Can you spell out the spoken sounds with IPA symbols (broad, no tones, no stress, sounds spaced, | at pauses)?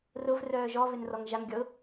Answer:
r ʊ v r œː ʒ ɔ v ɪ n r ɔ ŋ ʒ a ŋ ɡʲ ɔ ʊ̯